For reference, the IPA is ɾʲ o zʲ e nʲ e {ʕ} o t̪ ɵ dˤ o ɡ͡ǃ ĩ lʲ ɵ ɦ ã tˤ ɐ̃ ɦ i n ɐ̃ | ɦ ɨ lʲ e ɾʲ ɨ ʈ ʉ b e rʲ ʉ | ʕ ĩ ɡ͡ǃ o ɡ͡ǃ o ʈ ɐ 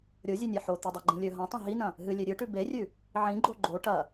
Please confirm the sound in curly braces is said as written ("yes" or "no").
no